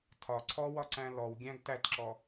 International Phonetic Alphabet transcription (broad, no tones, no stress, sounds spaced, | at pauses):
tʰ ɒ ǀʰ ɔ w ɒ ǀ æ̃ l ɔ w ɡʲ æ̃ ɡ t æ t ǁ ɔ